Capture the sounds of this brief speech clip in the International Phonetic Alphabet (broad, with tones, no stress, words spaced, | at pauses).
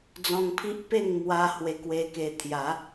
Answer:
d͡zɔ̃˧ŋpʰi˦ʔpe˥˧ŋ mwa˦ hwe˧kwe˧ke˧t̪ʰja˨˦